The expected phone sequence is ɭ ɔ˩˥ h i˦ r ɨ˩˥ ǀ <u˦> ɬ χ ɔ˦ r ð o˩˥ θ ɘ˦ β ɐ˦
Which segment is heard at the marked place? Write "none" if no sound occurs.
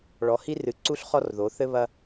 u˦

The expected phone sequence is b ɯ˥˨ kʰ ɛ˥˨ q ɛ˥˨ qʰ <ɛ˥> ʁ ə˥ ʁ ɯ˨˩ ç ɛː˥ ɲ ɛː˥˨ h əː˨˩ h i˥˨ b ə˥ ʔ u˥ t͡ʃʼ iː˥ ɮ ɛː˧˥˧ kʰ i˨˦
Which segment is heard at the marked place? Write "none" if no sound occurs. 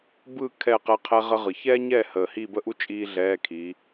ɛ˥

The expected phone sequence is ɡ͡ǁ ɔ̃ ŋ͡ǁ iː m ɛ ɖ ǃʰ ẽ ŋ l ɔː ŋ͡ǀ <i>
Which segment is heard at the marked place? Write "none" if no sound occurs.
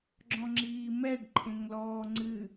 ɨ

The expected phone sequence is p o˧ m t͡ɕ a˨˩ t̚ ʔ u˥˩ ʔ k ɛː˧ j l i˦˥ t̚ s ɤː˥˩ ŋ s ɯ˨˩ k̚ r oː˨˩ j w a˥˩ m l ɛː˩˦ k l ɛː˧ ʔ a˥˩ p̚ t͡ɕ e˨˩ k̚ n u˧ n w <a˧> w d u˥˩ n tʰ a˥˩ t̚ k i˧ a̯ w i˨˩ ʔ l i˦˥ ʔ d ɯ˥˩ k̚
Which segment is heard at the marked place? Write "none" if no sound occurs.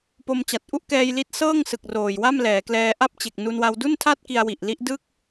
a˧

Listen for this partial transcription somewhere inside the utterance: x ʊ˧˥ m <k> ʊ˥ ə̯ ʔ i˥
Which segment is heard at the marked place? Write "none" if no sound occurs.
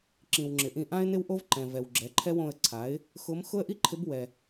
x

